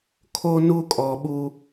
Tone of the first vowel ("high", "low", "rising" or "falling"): high